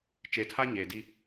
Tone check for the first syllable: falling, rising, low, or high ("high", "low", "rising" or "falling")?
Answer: low